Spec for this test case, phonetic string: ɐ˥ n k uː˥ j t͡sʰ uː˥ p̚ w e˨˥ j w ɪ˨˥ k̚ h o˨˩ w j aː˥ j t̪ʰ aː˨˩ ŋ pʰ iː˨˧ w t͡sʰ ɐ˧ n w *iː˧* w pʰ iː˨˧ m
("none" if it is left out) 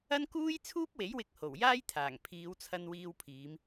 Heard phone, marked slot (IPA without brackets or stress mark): iː˧